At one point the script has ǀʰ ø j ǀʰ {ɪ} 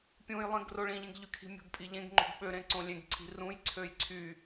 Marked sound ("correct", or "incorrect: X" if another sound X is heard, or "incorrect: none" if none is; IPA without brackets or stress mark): incorrect: y